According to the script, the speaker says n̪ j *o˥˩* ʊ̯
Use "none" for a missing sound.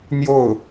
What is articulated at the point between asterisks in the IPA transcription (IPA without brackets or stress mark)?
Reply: o˥˩